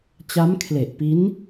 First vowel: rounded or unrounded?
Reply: unrounded